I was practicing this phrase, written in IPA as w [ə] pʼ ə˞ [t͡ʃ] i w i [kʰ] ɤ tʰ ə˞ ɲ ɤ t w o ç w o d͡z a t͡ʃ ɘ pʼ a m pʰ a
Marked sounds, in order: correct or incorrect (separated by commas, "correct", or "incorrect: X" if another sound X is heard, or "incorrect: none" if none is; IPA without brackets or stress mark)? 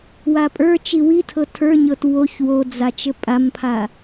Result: incorrect: a, correct, incorrect: tʰ